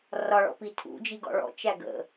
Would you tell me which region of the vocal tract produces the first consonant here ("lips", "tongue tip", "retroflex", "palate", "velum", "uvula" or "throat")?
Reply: tongue tip